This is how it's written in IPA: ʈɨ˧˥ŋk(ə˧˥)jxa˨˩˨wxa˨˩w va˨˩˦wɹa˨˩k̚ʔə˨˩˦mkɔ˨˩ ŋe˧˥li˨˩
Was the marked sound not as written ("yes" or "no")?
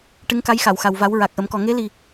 yes